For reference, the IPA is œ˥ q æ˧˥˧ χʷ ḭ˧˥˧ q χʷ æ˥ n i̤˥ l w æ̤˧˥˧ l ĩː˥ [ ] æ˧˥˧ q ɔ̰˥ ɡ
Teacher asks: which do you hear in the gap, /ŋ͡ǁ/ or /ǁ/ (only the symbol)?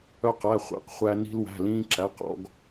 ǁ